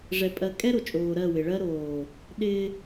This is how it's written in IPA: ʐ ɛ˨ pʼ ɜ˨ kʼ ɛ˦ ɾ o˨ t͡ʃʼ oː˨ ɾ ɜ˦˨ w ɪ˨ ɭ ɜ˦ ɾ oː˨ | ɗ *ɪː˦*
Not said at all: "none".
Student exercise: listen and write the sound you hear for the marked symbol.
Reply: ɪː˦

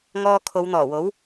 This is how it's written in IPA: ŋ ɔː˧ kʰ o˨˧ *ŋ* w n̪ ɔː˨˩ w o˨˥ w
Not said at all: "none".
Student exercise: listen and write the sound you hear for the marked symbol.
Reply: none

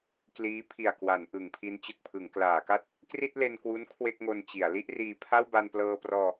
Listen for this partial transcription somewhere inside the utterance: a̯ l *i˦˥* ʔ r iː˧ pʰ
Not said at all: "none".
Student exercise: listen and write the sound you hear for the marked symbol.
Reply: i˥˩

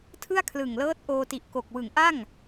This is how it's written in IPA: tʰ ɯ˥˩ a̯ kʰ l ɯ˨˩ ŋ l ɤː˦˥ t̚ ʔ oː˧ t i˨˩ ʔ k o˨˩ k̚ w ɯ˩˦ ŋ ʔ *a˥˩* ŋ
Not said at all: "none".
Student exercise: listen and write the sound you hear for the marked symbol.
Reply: a˥˩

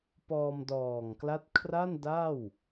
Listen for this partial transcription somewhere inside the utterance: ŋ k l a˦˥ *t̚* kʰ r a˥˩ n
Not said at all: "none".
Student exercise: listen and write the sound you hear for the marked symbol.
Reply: t̚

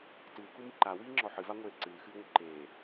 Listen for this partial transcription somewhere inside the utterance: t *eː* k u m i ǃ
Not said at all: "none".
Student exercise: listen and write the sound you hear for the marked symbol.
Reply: ɨː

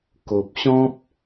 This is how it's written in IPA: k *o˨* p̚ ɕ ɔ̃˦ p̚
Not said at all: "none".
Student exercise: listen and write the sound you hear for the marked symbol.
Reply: o˨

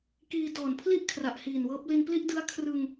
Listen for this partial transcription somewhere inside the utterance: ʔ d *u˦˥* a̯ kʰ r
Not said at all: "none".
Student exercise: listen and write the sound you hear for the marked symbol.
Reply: ɯ˦˥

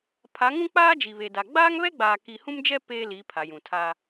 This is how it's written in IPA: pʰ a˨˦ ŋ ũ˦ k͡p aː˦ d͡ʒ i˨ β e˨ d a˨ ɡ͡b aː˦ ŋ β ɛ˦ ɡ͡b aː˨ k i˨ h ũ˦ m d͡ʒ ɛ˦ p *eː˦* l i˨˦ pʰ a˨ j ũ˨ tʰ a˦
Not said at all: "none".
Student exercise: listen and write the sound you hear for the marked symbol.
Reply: eː˦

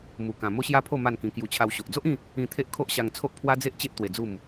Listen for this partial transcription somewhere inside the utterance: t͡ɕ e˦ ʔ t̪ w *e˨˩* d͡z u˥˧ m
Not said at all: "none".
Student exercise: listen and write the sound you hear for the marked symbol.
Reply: e˧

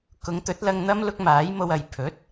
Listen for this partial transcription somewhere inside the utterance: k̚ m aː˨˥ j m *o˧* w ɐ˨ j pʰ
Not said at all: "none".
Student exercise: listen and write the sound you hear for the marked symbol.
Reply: o˧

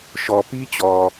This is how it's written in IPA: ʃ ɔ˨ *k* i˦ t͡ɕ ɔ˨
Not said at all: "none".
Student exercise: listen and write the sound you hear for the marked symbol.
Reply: p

